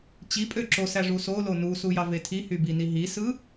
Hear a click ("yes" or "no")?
yes